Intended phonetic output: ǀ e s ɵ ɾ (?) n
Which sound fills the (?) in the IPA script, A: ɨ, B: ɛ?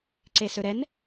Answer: B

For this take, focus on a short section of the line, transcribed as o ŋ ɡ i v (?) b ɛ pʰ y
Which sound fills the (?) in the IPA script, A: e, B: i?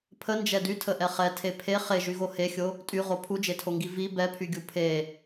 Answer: B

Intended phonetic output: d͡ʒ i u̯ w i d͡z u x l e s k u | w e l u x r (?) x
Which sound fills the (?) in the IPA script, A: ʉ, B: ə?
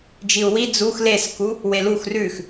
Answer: A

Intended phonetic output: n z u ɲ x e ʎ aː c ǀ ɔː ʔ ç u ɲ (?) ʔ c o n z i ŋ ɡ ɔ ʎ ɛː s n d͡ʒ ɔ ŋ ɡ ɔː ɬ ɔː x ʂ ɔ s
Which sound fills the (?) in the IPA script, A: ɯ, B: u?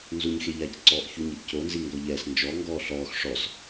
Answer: A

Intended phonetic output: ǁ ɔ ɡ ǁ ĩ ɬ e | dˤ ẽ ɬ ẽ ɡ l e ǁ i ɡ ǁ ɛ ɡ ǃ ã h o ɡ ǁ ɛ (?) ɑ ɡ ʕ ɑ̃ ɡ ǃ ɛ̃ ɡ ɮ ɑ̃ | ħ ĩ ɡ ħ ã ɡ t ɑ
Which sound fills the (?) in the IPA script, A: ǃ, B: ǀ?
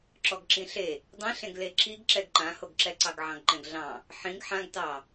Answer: B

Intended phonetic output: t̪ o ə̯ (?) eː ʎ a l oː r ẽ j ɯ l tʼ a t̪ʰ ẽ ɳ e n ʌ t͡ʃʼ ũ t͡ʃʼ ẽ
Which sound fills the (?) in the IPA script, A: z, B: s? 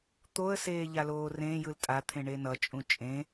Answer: B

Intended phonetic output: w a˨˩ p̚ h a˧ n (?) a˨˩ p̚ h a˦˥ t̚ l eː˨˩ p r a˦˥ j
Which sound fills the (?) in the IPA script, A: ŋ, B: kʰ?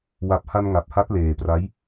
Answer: A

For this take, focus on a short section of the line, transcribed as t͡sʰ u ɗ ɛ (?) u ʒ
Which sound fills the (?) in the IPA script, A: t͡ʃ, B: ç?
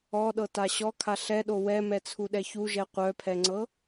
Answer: B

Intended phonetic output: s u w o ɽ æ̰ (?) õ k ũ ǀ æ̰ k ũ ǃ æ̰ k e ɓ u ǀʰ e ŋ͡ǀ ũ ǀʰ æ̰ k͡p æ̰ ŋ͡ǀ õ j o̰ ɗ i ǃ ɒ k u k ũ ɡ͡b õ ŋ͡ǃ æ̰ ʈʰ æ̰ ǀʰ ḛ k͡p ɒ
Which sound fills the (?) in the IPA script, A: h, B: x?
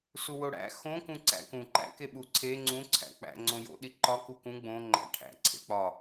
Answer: B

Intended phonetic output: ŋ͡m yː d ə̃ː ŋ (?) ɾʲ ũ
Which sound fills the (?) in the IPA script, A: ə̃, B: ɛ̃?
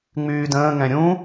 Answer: B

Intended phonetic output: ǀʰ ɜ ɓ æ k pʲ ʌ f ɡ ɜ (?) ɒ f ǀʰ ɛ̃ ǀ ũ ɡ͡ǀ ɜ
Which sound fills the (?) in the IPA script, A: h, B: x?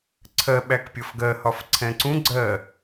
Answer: A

